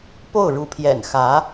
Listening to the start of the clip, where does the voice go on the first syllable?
falling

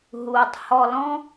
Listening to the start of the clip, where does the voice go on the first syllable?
low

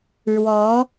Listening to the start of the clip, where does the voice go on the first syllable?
rising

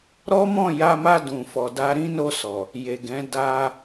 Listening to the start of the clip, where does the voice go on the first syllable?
high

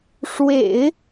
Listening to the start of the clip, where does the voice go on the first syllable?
low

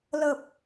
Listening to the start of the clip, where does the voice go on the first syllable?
low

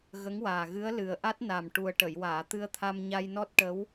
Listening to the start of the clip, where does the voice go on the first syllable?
rising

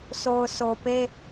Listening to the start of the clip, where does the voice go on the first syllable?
low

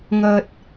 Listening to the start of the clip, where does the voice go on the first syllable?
low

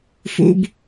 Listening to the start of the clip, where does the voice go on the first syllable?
low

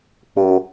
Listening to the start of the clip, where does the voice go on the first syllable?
low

